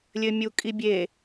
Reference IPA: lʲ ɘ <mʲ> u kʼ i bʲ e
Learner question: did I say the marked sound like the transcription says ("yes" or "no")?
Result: yes